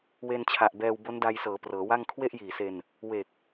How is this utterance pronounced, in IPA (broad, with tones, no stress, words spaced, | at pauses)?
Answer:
we˧nt͡ɕʰa˨˩ʔbɛː˧w bo˦˥nda˧jsɤː˩˦ prɤː˩˦wa˥˩ŋ kʰwe˥˩ʔjiː˨˩se˧n | we˨˩k̚